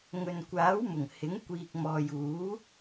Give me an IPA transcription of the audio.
ŋɵ˨nkʷaː˨˥wmʊ˨˩ŋ hɪ˨˥ŋ kʷiː˨k̚mɔː˨juː˨˥

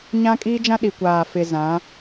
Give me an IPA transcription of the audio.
ɲã˦kʼiː˦d͡ʒã˦ ɗi˨kʷaː˨fɪ˨ zã˨˦

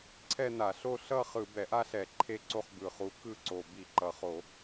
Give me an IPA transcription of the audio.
ǀʰɛ˥˧na˧˩˧ɬo˥˧ ɬʌ˥˧ χɯ˧˩˧ bɛ˧˩˧ʔa˥˧ɬɛ˧˩˧ ǃʰe˥˧ǀo˥˧χ bɯ˨˩χu˨˦ kɯ˥˩ǀo˨˩ bi˧˩˧ǃʌ˨˩χo˧˩˧

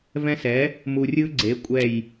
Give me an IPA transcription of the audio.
vɛ̃˦sɛ˨˥ | mu˨rʲɯ˦ ɡ͡ǀe˨˥kʷʼɛ˦˨j

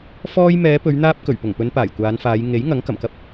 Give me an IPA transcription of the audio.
fɔː˧j mɛː˨˧pɵ˨˧ɥn̪aː˧p̚ kɵ˨˩ɥpʊ˨˩ŋpɵ˨˧n paː˨˩jkʷaː˨˧nfaː˨˧j ŋe˨˥j ŋɐ˨˥ŋ kɐ˨˩mkɐ˥p̚

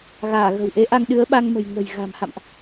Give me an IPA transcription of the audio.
ɣaː˧˩ɣə̤˨˩wʔe˨˦ʔa˧ŋ ɗɨ˨˦ə̯ɓa˧ŋmə̤˨˩j ŋə̤˨˩j ɣa̤˨˩mha̰˧˨mʔ

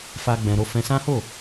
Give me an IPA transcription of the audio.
fa˦ɡ͡bɛ̃˧ɾo˦ fɛ̃˧sã˦ho˦˨

